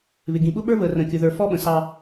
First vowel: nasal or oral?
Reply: oral